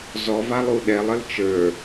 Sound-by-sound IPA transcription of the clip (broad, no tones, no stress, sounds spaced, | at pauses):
z ɔ v a lˠ u ɗ ɛ lˠ ə l t͡ʃ ə˞